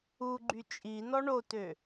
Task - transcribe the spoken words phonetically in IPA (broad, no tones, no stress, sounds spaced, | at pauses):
u ɡ͡ǃ y t͡ʃʼ i n ɔ ɳ o t ø